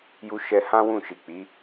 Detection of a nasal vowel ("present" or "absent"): present